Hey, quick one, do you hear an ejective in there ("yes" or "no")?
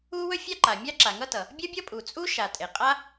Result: yes